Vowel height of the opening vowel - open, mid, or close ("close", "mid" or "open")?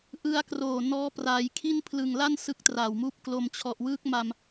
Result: close